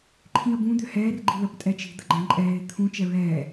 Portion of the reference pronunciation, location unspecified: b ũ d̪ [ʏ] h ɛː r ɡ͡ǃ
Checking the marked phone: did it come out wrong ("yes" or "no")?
no